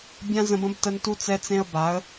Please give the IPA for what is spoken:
bʲ ã˦ z ə̃˧ b ə̃˦ b t ə˦ n t u˦ t͡s ɛ˦ t͡s ẽ˦ ə̯ b a˨˦ ə̯

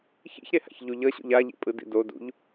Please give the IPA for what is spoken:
ç ḭ ç ɾ e h a̰ ç ʎ u ʎ ʌ ɕ ṵ ʎ a ʎ ḭ pʼ ɯ d ḭ d o d ṵ ʎ

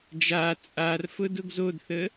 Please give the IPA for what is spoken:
d͡ʒ a t͡sʼ a r f ʊ d ʊ ɡ z o d θ ə

